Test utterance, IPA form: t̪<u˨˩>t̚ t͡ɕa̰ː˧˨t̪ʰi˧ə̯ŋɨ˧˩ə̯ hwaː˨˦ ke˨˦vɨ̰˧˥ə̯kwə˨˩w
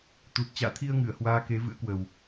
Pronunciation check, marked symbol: correct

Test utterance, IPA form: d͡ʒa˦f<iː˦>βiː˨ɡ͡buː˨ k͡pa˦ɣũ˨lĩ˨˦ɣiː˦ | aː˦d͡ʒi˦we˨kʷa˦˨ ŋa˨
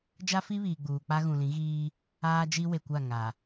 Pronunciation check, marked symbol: incorrect: i˦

